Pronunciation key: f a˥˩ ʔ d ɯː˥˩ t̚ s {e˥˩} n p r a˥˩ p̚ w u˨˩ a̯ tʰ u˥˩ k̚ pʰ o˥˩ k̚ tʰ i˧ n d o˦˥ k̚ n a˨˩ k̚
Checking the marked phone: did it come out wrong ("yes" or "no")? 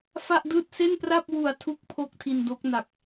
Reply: no